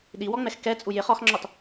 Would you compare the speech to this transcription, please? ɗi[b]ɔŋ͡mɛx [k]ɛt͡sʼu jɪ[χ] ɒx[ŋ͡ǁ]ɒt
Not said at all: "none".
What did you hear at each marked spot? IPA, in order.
w, k, χ, ŋ͡ǁ

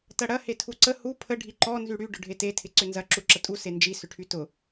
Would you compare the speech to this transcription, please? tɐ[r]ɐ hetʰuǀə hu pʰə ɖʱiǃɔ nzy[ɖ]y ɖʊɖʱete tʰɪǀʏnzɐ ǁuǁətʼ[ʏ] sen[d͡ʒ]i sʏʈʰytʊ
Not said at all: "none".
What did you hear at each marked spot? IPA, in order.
ɽ, ɽ, u, d͡ʒ

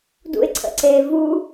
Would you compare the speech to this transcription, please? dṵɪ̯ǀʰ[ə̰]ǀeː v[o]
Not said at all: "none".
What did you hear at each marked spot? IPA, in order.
ə̰, u

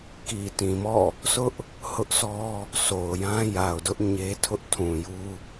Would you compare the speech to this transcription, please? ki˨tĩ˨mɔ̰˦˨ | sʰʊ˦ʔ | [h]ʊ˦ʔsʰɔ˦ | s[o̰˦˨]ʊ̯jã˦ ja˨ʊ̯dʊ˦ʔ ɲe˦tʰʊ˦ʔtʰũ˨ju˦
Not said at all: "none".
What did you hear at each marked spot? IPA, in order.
h, o˨

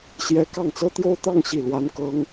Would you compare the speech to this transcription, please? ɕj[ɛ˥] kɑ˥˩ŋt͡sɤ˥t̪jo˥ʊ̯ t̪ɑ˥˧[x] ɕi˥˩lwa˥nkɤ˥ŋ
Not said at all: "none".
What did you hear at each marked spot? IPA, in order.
ɛ˥, ŋ

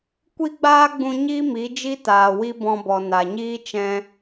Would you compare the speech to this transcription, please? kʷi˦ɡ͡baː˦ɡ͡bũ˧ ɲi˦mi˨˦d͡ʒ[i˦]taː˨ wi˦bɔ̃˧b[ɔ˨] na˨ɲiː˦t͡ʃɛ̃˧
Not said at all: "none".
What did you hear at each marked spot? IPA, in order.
i˦, ɔ˨

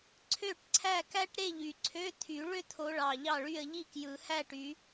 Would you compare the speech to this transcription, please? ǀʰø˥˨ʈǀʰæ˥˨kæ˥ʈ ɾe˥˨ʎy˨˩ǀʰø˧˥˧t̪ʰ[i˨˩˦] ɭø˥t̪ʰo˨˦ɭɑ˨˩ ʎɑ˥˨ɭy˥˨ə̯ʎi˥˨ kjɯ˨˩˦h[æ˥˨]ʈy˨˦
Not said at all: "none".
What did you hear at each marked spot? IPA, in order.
y˨˩˦, æ˥˨

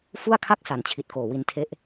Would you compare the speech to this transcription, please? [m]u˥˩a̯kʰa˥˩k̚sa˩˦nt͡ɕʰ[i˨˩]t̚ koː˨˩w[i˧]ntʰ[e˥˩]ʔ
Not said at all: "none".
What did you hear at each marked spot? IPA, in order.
f, i˨˩, i˧, e˥˩

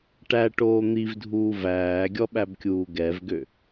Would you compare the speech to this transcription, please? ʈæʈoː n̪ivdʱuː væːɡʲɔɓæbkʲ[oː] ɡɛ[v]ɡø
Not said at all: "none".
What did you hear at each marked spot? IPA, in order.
uː, v

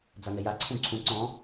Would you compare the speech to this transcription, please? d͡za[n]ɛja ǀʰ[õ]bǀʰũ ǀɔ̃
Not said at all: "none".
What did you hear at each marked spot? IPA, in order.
n, ũ

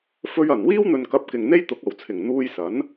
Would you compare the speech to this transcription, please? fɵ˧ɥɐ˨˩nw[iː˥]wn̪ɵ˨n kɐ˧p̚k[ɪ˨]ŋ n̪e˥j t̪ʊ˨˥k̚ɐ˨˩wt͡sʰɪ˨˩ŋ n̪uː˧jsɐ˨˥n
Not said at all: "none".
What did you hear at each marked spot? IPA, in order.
iː˥, ɪ˨

